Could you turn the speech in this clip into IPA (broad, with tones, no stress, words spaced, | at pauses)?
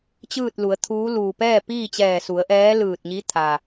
t͡ɕɯː˥˨t̚lu˩˧ə̯t̪ʰuː˧˥ luː˩pɛː˥˨ piː˥˨t͡ɕɛː˧˩su˩˧ə̯ ʔɛː˧˥ lɯː˧˩t̚ɲi˧˥ t̪ʰa˩